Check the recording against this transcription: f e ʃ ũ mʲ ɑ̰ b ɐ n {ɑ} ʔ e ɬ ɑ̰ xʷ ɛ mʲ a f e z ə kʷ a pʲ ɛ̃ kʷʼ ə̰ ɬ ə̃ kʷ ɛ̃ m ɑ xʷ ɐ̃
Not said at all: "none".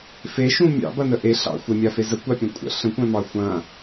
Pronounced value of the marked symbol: ə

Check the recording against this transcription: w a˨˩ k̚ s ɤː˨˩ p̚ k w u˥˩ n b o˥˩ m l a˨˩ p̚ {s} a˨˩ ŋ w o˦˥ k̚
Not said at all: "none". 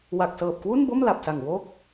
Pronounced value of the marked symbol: s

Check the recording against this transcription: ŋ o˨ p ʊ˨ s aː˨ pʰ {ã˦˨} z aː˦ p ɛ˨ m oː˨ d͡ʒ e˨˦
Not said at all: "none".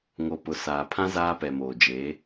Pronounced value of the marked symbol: ã˦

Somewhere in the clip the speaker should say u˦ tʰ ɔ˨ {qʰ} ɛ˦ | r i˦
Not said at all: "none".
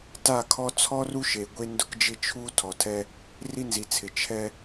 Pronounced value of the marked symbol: tʰ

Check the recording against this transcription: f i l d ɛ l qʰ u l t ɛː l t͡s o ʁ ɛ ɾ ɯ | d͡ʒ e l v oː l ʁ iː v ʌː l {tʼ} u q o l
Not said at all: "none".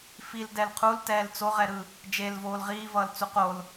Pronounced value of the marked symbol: t͡s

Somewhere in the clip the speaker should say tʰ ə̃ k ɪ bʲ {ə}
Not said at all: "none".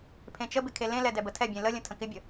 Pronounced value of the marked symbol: ə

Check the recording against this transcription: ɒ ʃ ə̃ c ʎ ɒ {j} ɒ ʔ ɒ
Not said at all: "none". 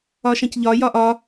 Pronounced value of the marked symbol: j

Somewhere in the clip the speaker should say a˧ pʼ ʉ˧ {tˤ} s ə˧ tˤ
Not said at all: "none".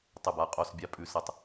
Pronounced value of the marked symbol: none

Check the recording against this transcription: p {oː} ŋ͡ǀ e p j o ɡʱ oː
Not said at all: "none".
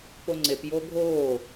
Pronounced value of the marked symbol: o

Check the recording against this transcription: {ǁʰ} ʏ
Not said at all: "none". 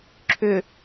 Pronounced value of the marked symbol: ǁʰ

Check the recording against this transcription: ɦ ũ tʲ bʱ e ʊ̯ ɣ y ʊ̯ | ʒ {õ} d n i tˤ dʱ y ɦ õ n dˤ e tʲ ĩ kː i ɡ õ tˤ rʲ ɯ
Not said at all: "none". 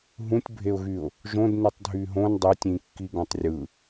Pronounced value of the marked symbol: õ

